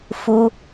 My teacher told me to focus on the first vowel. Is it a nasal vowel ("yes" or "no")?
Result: no